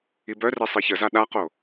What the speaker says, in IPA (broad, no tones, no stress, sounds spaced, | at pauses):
i b œ r e sˤ i ç ə z a ɗ a q o